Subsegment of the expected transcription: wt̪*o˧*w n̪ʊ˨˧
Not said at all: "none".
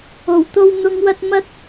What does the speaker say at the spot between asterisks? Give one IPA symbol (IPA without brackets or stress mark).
o˧